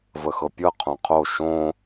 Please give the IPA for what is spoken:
vəxɤpʲɤ qʰõqʰo ʃõ

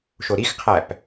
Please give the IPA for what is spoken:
ʃoɾixqʰæp

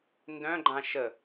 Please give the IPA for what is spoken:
ndœ̃ɡ͡ǃã ʃə

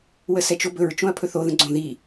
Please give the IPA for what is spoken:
wəsɛt͡ʃobɵɹ t͡ʃõɐ̯pʰɵθo ðə̃ɡ͡ǀõ ði

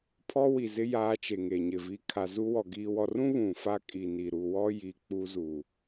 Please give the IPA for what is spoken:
pʰɔ˦wi˨zɪ˦ jaː˦t͡ʃe˨ŋe˨ɲɪ˨ vi˨ kʰa˨zu˦wɔ˨ ɡiː˨wɔ˨rũ˦ βũ˨fa˦kʼi˨ni˨ ɾu˨wɔ˦ji˨ k͡pu˦zu˨

